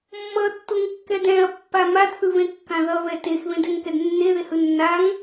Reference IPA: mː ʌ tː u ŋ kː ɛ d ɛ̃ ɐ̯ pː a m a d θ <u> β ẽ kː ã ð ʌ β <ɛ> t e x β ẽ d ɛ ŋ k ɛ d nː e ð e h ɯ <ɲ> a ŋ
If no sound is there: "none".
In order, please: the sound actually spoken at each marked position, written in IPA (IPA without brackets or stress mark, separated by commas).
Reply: ɯ, ɛ, nː